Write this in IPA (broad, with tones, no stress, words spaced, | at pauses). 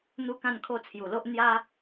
n̪u˥˧kã˥˧nkʰo˥˧ t͡sʰju˨˩lo˦ʔ n̪ja˦